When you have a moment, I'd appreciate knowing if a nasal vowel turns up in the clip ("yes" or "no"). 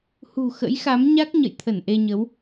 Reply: no